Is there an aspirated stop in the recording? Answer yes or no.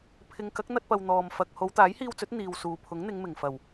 yes